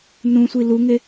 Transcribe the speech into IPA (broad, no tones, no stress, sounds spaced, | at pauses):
n ũ sʷ i l u ŋ e